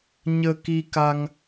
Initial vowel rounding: unrounded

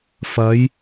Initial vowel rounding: unrounded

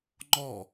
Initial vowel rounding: rounded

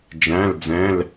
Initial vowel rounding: unrounded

